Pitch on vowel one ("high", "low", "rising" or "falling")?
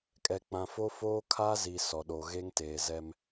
low